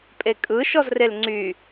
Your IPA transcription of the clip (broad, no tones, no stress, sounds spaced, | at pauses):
pʼ e kʼ ɯ ʃ ɔ z r e l ŋ͡ǀ y